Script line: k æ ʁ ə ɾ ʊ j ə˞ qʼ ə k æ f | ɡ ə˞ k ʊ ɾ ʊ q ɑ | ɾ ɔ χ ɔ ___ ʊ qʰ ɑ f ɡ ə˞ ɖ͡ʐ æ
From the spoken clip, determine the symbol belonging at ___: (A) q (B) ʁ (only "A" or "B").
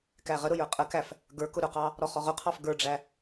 B